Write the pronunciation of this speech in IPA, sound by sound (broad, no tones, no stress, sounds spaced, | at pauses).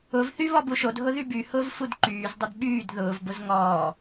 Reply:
ʊ v θ y β ɔ b u ʃ o d ɦ ʊ ð y b y h ʊː v f u d ǃ yː z dˤ ɪ d ɓ yː d ð ʊː v b ʊ z ŋ ɔː